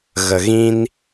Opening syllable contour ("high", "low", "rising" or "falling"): low